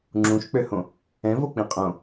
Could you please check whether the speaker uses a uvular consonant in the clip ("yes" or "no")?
yes